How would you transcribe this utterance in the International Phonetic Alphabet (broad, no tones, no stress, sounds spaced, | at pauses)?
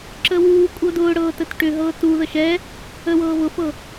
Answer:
ǁ ə w uː kʷʼ ɤ d ʊː ɽ ɤː t ə t ʈ ʏ ɦ ɤː t u ð ə ʃ ɛ | ə w ɤː β ʊ f ɤ